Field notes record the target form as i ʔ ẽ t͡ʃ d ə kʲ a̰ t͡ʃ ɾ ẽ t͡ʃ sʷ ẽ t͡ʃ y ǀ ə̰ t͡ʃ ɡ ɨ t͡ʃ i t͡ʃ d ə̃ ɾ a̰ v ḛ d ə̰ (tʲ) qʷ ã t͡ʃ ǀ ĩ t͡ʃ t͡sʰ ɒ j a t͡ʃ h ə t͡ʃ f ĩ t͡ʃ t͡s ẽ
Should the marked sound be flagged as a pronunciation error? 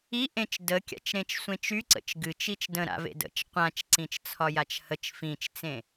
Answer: yes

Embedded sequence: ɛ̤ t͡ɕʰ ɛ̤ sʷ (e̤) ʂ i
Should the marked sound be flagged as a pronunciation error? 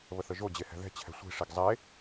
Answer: yes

